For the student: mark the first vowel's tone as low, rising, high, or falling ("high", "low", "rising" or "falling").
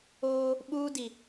high